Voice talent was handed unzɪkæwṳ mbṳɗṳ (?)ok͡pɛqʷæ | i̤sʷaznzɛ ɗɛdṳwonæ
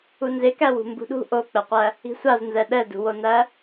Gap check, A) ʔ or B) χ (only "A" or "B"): A